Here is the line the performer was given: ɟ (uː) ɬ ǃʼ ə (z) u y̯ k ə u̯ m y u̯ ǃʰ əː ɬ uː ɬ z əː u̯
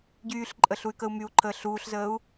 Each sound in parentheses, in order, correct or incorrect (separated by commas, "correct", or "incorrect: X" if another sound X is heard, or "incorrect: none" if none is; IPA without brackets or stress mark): incorrect: yː, incorrect: ɬ